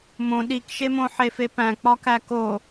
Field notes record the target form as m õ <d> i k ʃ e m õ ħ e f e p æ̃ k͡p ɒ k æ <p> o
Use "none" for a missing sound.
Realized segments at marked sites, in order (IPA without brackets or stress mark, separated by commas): ɗ, k